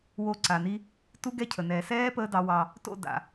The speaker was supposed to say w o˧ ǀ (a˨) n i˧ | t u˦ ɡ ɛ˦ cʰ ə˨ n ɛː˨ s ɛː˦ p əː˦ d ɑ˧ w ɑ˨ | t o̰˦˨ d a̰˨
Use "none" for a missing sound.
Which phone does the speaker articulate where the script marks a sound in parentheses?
a˨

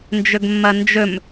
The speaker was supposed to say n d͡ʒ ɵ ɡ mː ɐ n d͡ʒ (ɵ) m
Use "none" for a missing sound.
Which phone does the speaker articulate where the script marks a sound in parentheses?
ɵ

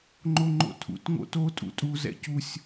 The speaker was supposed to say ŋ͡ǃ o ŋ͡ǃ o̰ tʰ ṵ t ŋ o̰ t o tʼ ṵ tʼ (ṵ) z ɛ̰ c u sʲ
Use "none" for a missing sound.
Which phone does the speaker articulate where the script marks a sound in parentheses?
u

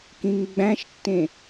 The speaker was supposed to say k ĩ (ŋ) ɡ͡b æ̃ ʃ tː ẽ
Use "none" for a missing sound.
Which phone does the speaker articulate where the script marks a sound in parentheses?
ŋ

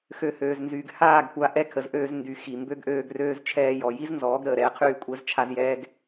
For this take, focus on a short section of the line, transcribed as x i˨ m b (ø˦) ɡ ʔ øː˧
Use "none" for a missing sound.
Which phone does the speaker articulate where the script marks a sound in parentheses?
ø˦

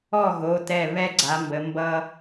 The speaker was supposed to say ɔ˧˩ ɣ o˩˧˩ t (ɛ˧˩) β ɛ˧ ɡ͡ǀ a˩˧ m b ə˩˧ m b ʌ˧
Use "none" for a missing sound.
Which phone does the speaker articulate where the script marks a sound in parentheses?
ɛ˧˩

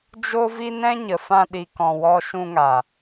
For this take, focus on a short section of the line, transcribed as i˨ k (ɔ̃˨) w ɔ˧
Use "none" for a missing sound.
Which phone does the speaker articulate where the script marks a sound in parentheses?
ɔ̃˨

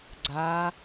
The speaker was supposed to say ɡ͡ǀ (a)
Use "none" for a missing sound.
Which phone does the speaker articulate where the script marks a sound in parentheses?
a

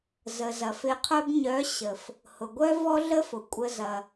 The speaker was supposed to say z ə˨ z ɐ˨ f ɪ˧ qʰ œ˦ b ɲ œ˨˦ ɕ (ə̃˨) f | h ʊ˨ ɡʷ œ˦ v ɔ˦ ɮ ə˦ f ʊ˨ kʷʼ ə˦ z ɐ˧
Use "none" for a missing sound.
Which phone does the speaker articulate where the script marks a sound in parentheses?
ə˨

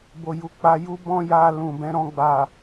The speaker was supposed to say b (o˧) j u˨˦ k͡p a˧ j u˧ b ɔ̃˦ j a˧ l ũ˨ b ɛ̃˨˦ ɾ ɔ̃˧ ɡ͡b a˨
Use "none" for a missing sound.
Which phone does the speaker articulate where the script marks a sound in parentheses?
o˨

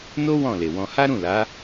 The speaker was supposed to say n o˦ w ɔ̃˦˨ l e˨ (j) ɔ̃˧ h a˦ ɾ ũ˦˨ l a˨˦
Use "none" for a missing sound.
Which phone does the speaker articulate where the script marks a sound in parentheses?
w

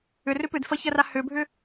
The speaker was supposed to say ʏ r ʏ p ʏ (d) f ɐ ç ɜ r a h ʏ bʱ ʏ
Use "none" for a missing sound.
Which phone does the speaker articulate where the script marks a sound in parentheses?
d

